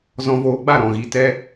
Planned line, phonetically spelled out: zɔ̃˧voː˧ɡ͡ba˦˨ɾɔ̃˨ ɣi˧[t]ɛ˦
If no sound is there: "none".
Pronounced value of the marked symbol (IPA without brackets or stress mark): t